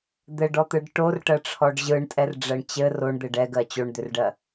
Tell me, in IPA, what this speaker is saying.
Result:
d̪ɘɖɔt̪ɯɖ ʈorʈɜʈ͡ʂʰɔɖ ʑɯɳtʼɛrɖ͡ʐɜɳ t͡ɕɘ roɳd̪ɘɖ ɛɡɜ t͡ɕoɳd̪ʏrɖɜ

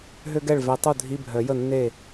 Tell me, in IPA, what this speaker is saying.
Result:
ɦø˥ɡɛ˥˩ɭvɛ˨˦tˤu˥˩ dʱi˧˥˧bʱœ˨˩˦jə˥˩ nːe˥˩

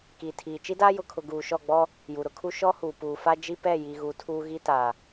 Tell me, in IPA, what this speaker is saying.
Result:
ki˨tʰiː˨ t͡ʃi˦daː˦jʊ˨kʰʊ˨ ɡuː˨ʃɔ˦˨ɡ͡bɔ˦ | ju˨ɾʊ˦kʰu˦ ʃɔ˦huː˨ puː˨fa˦d͡ʒi˦ pɛ˦˨ji˨ɣu˨ tʰuː˦ɣi˦ ta˨

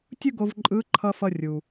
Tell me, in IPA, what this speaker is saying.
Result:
tʲɯ˥ɡo˧v ǃʼɯ˧˥ǃʰʌ˧ fʌ˧rʲu˩

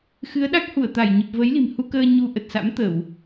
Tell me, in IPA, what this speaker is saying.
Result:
xɨ˨˦ə̯ɗa˦˥k̚hu˧˩ə̯ t̪a˧˩j ɲə˨˩p̚ və˨˦jli̤˨˩mhu˧kəː˧ ɲu˧ ʔə˨˩t̚sa̰˧˥mt̪ə˧˩˨w

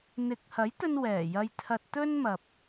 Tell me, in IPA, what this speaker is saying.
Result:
n̪ɪ˨˥k̚hɐ˨˥jt̪ɵ˧n wɛː˨˩jɐ˧j t̪ʰɐ˧t̚t̪ɵ˥nmɐ˨p̚

